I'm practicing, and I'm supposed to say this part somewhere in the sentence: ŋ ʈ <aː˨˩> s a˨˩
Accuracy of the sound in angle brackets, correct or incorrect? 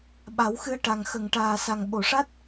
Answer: correct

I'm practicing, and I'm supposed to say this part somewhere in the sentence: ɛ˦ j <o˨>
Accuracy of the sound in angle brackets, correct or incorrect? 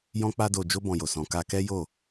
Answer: incorrect: o˦˨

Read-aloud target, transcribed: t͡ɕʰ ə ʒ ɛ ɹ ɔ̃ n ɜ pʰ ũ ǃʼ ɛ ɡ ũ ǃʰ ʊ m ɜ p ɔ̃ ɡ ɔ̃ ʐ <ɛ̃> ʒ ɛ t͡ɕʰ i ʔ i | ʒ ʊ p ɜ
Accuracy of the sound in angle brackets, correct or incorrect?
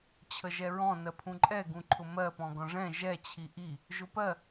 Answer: correct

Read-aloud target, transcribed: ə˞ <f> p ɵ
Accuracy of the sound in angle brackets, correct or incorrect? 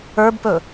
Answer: incorrect: b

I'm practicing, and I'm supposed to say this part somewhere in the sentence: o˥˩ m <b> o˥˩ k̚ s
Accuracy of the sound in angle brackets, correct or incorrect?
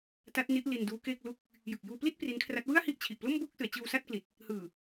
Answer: correct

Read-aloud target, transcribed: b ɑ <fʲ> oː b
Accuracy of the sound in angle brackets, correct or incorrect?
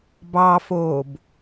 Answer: incorrect: f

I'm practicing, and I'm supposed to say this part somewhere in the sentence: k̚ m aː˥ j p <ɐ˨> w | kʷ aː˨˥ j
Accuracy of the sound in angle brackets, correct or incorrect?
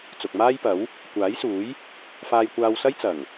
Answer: incorrect: ɐ˨˥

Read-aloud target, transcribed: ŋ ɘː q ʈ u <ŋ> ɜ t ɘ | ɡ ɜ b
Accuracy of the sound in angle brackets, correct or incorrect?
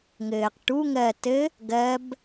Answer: correct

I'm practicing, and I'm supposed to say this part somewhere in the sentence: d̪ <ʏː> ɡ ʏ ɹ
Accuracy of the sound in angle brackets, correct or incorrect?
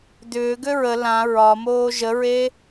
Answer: correct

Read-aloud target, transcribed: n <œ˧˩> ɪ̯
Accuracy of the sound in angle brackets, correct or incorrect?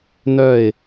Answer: correct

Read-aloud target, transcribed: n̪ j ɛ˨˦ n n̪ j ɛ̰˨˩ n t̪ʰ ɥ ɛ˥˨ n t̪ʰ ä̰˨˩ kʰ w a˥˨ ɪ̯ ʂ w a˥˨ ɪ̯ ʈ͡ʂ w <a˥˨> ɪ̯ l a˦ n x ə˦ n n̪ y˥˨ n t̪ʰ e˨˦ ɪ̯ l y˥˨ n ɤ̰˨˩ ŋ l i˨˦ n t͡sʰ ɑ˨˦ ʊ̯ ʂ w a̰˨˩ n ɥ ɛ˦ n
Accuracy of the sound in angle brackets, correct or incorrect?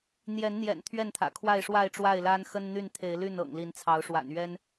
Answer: correct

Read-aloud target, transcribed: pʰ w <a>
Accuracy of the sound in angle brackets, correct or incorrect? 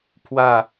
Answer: correct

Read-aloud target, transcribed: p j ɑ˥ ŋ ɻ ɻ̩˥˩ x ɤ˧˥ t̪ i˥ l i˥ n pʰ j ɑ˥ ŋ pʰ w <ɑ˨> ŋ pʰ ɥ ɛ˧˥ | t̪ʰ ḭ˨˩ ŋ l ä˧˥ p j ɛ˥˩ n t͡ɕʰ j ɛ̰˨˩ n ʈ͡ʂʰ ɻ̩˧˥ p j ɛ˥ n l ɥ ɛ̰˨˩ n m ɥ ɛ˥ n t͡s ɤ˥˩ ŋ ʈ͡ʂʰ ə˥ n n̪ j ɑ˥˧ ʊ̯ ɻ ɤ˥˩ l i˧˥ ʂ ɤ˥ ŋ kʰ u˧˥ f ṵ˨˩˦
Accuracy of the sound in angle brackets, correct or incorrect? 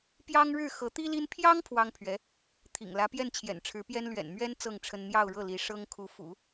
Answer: incorrect: ɑ˥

